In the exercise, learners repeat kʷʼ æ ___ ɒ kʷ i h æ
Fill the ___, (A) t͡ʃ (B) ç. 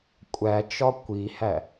A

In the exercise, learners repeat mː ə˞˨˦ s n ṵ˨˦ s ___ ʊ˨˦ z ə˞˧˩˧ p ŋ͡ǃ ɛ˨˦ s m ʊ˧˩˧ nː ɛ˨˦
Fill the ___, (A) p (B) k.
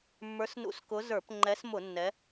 B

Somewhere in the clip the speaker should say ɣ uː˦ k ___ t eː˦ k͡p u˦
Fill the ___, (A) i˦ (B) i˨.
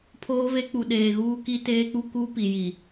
A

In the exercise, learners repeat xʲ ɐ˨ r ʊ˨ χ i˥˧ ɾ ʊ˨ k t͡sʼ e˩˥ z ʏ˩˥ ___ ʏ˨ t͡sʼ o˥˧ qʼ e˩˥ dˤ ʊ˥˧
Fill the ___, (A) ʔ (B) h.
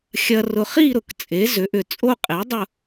A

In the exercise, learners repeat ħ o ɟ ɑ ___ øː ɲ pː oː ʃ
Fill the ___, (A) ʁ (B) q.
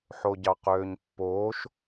B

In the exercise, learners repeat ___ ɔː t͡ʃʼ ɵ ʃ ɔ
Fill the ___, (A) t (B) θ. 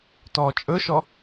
A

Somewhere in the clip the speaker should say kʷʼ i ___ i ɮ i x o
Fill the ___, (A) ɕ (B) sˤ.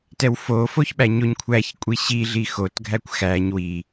A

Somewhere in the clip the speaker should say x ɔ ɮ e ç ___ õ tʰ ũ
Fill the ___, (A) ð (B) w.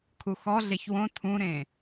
B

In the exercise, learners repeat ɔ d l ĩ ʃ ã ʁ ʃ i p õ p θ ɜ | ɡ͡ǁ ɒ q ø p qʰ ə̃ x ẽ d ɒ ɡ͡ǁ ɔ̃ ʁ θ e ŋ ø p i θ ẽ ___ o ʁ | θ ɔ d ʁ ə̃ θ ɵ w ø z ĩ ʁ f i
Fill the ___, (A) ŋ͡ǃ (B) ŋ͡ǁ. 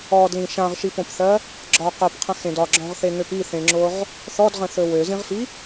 B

